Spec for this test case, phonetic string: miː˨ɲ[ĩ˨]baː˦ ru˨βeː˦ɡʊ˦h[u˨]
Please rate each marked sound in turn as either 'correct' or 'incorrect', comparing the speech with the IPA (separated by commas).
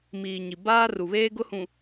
incorrect, incorrect